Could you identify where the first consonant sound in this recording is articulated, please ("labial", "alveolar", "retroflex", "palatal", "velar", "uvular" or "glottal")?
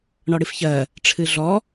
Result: retroflex